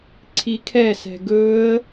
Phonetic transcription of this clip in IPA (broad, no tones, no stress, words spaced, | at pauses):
ǀʰikʰɛsɛ̤ ɡɵə̯